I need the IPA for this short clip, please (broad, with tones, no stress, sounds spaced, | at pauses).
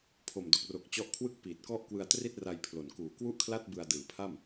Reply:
pʰ o˨˩ m d o˨˩ k̚ r o˨˩ k̚ t͡ɕ ɔ˦˥ ʔ kʰ w ɯ˥˩ k̚ p iː˨˩ t̚ k ɔ˥˩ ʔ k w ɯ˧ a̯ t r i˥˩ t̚ r a˧ j pʰ l o˨˩ n k uː˨˩ k w u˥˩ ʔ kʰ l a˥˩ t̚ b ɯ˧ a̯ d ɯː˨˩ pʰ a˥˩ m